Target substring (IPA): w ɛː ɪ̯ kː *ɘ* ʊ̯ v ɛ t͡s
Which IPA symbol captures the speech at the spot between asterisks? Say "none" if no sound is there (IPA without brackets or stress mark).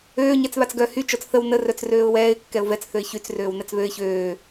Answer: ɛ